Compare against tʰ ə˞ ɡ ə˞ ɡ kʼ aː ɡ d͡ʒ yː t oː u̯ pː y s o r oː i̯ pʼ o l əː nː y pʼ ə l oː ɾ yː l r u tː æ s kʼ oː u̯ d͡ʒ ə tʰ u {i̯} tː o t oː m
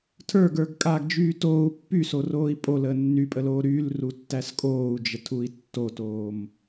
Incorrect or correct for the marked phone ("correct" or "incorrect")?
correct